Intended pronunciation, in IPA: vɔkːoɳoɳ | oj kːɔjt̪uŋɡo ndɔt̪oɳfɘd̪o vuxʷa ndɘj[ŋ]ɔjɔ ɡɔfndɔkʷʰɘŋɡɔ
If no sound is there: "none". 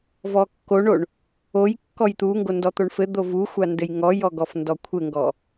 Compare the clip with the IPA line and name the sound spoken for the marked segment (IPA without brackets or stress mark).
ŋ